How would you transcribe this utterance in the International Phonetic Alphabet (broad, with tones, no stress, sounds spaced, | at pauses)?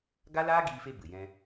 ɡ a˦ l aː˦ ɡ iː˧ f e˧ b ɨ˨ j ɛ̃˦